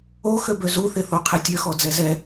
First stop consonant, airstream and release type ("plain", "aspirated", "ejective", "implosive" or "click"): plain